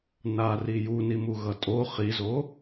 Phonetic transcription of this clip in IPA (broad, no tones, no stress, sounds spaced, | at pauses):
n a r i j u n i m u ɣ ʌ tʼ o χ i z o